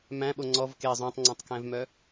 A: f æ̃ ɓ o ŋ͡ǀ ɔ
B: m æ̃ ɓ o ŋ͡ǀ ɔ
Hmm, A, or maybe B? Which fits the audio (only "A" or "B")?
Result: B